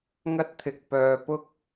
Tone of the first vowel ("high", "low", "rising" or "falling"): high